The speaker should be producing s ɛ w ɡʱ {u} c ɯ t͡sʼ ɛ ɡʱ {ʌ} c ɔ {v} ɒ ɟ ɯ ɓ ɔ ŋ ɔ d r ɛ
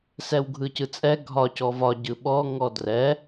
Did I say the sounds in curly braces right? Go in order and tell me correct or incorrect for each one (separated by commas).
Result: incorrect, incorrect, correct